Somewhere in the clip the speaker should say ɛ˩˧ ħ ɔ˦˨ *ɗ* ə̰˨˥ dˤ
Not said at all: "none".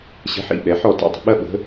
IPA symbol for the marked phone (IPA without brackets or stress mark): t